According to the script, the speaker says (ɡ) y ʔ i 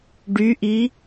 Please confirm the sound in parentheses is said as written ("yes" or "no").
no